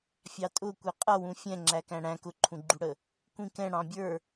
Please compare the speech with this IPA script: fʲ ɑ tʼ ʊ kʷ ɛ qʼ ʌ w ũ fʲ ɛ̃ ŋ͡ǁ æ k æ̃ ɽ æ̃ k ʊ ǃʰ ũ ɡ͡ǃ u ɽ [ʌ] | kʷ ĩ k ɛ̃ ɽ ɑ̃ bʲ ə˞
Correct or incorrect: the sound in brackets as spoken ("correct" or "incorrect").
incorrect